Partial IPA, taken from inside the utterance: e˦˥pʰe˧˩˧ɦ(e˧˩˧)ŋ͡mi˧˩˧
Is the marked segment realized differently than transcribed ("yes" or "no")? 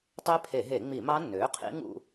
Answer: no